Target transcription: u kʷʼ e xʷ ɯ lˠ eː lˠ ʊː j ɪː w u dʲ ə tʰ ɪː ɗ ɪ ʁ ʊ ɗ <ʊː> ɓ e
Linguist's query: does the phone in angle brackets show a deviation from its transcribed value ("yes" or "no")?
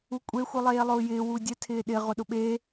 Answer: yes